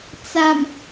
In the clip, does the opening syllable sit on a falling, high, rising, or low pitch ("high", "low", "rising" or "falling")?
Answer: low